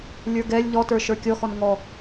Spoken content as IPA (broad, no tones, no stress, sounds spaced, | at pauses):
lʲ ə˞ ɡ ɛ lʲ ʎ ɔ t ə˞ ʃ ə˞ kʲ ɔ x ɔ n ŋ ɔ